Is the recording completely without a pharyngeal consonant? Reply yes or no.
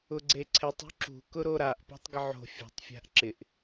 no